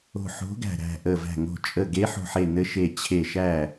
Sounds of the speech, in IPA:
o̤˧˩ħo̤˨˥ɡæ̤˧˩ ɾæ̤˧˩ʔə˧˩væ̤˧˩ŋo̤˧˩ t͡ʃʼə˧˩ɡe˨˥ħo̤˧˩ ħe˧˩ nɘ˨˥ʃe˧˩ t͡ɕʰe˧˩ ʃæ˧˩

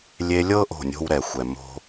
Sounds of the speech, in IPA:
lʲe˧lʲɤ˦ ʔo̤˦˨nʲo̤˦wɾɛ˨xʷɛ˨ mo̤˦

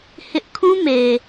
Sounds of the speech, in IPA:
hɪ˦ʔ kʰũ˦ me˨

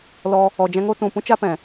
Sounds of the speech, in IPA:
lɔ˧ | ɔ˨d͡ʒɛ̃˧ŋo˦tũ˨ pũ˦t͡ʃa˦pɛ̃˨

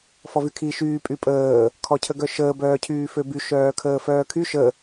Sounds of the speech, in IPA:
fɔvykʰi ʃyː pʼypʼəː | kʰɔcʰəɡœʃəː bœːcʰyːføby ʃœːkʰəːfœːkʰy ʃə

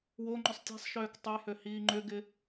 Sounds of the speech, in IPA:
woŋ͡ǃʊsˤ tʲɛ̤sˤʃøːk tˤʊjhø hiːŋ͡ǃʏɡɪ

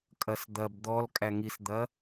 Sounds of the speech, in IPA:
kʼɐsd̪ɐb d̪ɔl kʼæŋisd̪ɐ

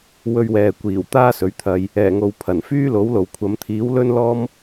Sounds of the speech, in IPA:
wɵ˧ɥwɛː˨kʷiː˨˩w t̪aː˥sɵ˨˥ɥt̪ʰɐ˧j | ɛː˨˩ŋo˨w pʰɐ˨˩nfyː˥lo˨˥w lo˨wkʷʰɐ˨˧m t̪ʰiː˨˥wlɵ˥n lɔː˥m

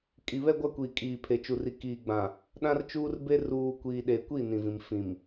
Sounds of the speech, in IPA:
kʼi˨βɛ˦ɡʷa˦ kʷiː˨kʼiː˨pʰe˨ t͡ʃu˨ri˨ kiː˨ɡ͡bã˨ | ɗã˦rt͡ʃuː˦rbe˦ ruː˨ kʷiː˨ɗe˨kʷi˦˨ nĩ˨vĩ˨m fĩ˨m

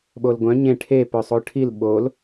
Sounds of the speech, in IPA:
ɓolɡʷœ̃ ɲẽ ʈʰe pœsˤoʈʰil ɓol

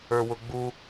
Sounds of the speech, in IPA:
ə˞wʊɡ͡bu

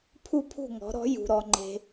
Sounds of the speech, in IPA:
pʰu˥˩pʰṳ˥˩ŋɔ̤˩˥ ɾɔ̤˩˥jṳ˩ɾɔ˩ŋ͡ǃe̤˩

